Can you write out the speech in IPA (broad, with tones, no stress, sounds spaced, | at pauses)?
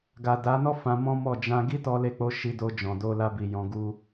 ɡ a˨ d a˨˦ n ɔ˦ f ã˧ m ɔ̃˦ m ɔ˦˨ d͡ʒ ã˧ ɡ i˦ t ɔ˧ l e˧ k͡p o˧ ʃ i˧ d o˧ d͡ʒ ɔ̃˨ d o˧ l a˧ b i˨ j ɔ̃˧ ɡ u˦